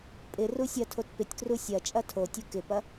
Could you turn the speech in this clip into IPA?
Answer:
pʼɪ rusʲɐtʰot pɪtʲkru sʲɐ t͡ʃʼɐtʰotʲu kɪpɐ

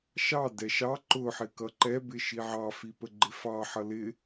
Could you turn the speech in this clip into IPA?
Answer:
ʃɑdɛ ʃɑ ǃʊħɪ kʌǃɛbɪ ʃiʕɑfi pəɡ͡ǃɪfɑħʌ lɪ

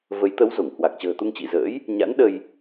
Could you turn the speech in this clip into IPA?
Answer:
və˨˦j t̪ə˨˦wzo˧˩ŋhwa˨˩k̚ t͡ɕə̤ː˨˩t̪u˧ŋt͡ɕḭ˧˨zə̰ː˧˥j | ɲa̰˧˥nɗə˧j

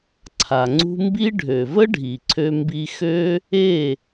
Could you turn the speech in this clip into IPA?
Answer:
ǀʰa˨ŋ͡ǀṳ˦ mbi˦ ɖʱø˨və˦ɖʱi˨ ǀʰø˧ mbi˧xø˦ | e˦˨

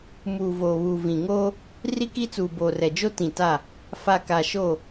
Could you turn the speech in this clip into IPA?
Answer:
muː˨ voː˨βuː˨vĩ˨ŋoː˦ | ri˦ki˦t͡suː˨ boː˨rɛ˨d͡ʒo˦ tĩ˨ta˦˨ | fa˨ka˨ʃo˦˨

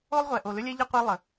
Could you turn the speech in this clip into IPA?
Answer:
o˦lˠʁʷɛ˨ ʔo˨lʏ˦lʲɛ˦ʎʌ˦ qʷe˦lˠə˨

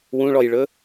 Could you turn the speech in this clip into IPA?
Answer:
wũɭɔjɭɵ

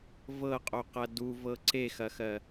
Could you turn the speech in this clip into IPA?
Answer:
vɤqʼoqɐ duvɤ ǀexɐxɜ

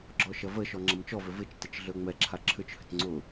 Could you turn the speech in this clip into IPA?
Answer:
ɡ͡ǁɔʃɐvəʃɔ ŋ͡ǁɐmt͡ʃɔvʏ vɪt͡ʃtɪt͡ʃ ɮøŋ͡mɛǁʰa ǁʰʏt͡ʃhʏt ŋ͡ǀʊ

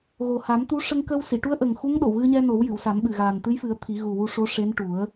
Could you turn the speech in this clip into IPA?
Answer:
ɣo˨˩ha˨˩˦m t̪u˧˥ ʂə˧ŋkə˧w si˨˩˨ʈu˧˥ə̯ʔə˨˩ŋ xu˧˥ŋɗo˨˩˨wɣɨ˧ɲɛ˧ no˨˩˦wjɨ˨˩˨wsa˨˩˦mɓɨ˨˩ ɣaː˨˩nt̪ɨ˧˥jfɨ˨˩˦ə̯ t̪ʰi˨˩˦ɣu˨˩wu˧ ʂo˧˥ʂe˧˥nʈu˨˩˦ə̯

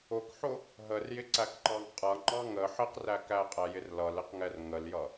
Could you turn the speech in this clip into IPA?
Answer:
ʊkħʊ | ɦərjɪǀækǃɑŋ qʼʌŋ͡ǃɑ ŋə ħɪqræ kæqʼæjɪr lʌlɪqŋɛr ŋəljʌ

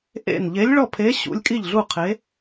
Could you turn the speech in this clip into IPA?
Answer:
ʔḛ˥˩n ʎe˨˥lʲɭɔ˥˩pʰe˨˥ ɕṵ˨˥lʲkʼi˥˩ʎɮu˥˩ qʰe˨˥

